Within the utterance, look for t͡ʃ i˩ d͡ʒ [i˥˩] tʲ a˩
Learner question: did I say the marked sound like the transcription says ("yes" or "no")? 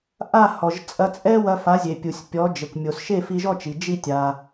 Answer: yes